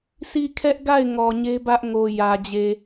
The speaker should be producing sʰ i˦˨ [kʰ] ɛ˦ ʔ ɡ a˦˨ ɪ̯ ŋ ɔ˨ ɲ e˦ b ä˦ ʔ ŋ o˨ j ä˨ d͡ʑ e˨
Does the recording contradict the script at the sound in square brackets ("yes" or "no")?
no